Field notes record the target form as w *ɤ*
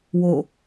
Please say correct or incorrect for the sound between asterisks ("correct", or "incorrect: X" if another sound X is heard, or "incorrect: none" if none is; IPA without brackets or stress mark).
incorrect: o